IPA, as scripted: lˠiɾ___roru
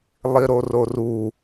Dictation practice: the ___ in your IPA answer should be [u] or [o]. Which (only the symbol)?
o